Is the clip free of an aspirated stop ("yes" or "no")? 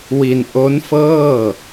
yes